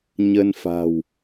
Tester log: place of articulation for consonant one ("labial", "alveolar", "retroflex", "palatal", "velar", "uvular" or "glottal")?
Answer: palatal